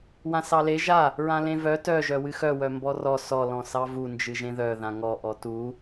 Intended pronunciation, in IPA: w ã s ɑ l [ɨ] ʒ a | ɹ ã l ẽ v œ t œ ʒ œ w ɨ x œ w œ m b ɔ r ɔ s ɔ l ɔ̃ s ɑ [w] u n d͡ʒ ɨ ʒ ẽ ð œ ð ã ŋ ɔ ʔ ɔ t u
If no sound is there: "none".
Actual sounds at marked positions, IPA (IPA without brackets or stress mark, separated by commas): e, v